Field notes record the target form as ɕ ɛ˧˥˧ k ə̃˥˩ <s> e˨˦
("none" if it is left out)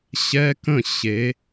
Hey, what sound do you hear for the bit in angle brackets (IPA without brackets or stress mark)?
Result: ɕ